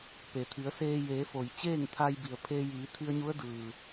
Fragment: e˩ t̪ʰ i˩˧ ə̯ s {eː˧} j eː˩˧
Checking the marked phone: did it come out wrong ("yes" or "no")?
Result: no